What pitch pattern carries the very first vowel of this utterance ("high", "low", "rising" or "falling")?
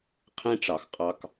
high